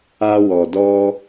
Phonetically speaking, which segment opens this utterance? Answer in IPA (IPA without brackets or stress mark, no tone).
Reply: a